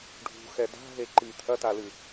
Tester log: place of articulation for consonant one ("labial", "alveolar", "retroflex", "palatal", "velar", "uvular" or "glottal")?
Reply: retroflex